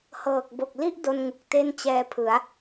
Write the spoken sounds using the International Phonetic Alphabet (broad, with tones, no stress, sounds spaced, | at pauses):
h ɤː˨˩ k̚ b o˨˩ k̚ l i˥˩ ʔ d o˧ n ŋ u˨˩ k̚ t e˥˩ n t͡ɕ ɛː˧ pʰ ɯ˩˦ a̯